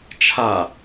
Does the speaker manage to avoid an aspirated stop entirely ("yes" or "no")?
no